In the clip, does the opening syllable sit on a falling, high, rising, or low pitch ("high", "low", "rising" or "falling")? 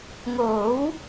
rising